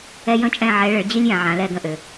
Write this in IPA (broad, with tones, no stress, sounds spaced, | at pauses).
ɛ˦ j ə̃˥˨ t͡ʃʼ ɛ̃˥˨ ʕ ɛ˨˦ ɭ ɘ˨˦ ɭ d͡ʑ i˦ lʲ j ã˨ ʕ ã˨˦ l ɛ˥˨ ɡ ə̃˥˨ ʔ ø˨